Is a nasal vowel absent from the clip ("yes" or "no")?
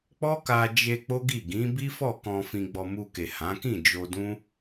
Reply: no